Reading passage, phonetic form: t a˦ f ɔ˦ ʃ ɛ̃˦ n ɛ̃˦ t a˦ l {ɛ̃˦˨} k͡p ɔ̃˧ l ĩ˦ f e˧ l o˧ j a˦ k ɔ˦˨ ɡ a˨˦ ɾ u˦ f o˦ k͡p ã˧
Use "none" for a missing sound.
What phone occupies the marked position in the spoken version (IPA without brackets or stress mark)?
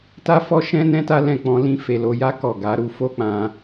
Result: ɛ̃˦˨